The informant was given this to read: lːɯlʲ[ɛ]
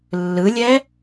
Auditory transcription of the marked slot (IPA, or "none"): ɛ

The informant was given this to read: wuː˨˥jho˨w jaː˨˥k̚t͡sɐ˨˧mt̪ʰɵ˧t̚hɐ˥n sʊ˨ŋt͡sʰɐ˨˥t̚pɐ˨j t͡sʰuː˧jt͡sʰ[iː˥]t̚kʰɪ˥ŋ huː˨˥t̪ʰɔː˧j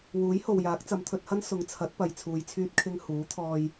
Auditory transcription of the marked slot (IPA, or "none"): yː˥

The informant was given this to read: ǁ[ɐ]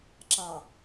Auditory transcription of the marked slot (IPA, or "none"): ɑ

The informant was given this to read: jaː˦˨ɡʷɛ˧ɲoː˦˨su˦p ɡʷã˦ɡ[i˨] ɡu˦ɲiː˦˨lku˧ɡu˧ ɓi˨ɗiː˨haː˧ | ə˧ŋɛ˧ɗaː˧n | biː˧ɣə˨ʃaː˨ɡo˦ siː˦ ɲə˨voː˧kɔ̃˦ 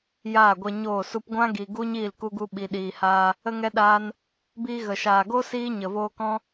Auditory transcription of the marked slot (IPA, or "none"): i˨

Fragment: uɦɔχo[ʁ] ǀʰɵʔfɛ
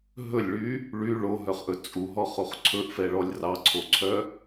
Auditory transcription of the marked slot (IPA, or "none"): χ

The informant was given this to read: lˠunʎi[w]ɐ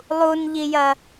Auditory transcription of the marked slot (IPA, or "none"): j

